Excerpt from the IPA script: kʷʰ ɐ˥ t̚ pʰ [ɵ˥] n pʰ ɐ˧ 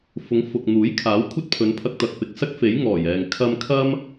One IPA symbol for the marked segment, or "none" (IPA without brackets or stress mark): ɵ˨˧